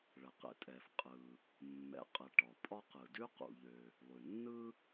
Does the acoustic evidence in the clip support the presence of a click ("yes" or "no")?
no